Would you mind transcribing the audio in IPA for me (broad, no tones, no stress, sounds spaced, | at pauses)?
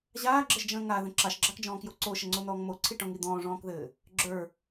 ʑ aː ɡ͡ǁ ə ʒ d͡ʒ ə̃ː ŋ a ð ə̃ ǁ ɑ ʃ ɡ͡ǁ ɑ k d͡ʒ ɔ̃ː k j o ǀ o ʃ ə ŋ͡ǀ o n̪ ɔː ŋ m o ǀʰ i ʈ ɔ̃ ŋ i d̪ ɔ̃ː ʐ ɔ̃ː k ð ɘː | ɡ͡ǁ ə˞